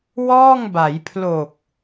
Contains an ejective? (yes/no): no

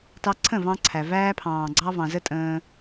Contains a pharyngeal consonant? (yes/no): no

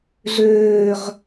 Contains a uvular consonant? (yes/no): yes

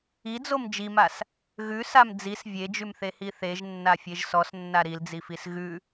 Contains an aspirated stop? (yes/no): no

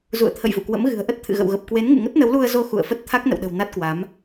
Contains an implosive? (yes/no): yes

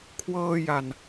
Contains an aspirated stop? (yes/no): yes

